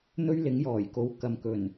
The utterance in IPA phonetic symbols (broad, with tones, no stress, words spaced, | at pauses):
n̪ɵ˥ɥlɪ˨˥ŋjɔː˨˩j ko˨w kɐ˨m kɵ˨˩n